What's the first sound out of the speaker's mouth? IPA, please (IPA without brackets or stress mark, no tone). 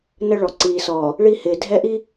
n